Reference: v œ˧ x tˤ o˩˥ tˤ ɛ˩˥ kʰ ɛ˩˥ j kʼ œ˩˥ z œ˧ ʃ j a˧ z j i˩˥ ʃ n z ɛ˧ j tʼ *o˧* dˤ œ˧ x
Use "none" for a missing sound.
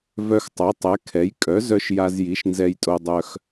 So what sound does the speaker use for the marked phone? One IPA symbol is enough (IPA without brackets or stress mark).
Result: o˧